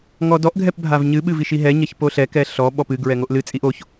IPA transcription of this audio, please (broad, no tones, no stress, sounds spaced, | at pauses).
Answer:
ŋ ɔ d ɔ ʔ ɡʱ ɛ p bʱ a v ɲ ɨ ɓ ɨ v i ʃ i ɦ ɛ ɲ ɐ ç p o ɬ ɛ k ɛ ɬ ɔ ɓ ɔ p ɨ ɡ ɹ ɛ ŋ o ʔ l ɨ t͡sʼ i ʔ o ç